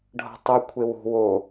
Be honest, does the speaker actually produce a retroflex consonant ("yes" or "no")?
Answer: yes